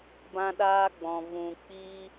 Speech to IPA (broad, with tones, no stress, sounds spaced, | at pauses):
b ã˧ ɗ aː˧ ɡ͡b ɔ̃˨ v ũ˨ k͡p iː˦